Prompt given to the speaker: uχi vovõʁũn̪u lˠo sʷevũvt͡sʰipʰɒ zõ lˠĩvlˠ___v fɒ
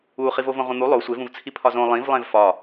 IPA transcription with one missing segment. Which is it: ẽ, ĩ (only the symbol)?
ẽ